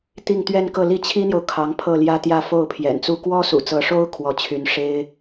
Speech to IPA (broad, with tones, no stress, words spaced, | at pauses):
t̪i˥˧ŋt̪ɥɛ˥˧nkɤ˥˧ li˥˩t͡ɕʰi˥n̪jo˨ʊ̯ kʰɑ˧˥ŋpʰɤ˥˩ljä˥t̪jä˥˧ fo˥˩ʊ̯pʰjɛ̰˨˩nt͡su˥˩ kwɔ˥sṵ˨˩t͡sɤ˧˥ʂo˥ʊ̯ kʰwɔ˧˥t͡ɕʰy˧˥n ʂe˥ɪ̯